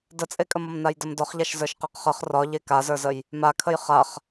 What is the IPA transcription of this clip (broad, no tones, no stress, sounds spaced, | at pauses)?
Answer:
d ə t͡sʼ e kʼ ə m ɒ m n a j d ə m d ɒ χ ʎ a ʃ z ə˞ ʃ q e q χ ə χ r ɒ ʎ e k a z ə˞ z ə j | m a kʰ ə j χ a χ